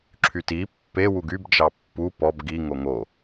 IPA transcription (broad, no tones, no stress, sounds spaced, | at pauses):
ǁʰ y t i pː e w u ɡ y b d͡ʒ ɑ pː u p ɔ b ɡ i ŋ o ŋ o